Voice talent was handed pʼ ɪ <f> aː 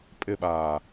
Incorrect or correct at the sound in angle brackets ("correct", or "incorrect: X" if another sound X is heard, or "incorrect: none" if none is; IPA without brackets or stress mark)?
incorrect: ɓ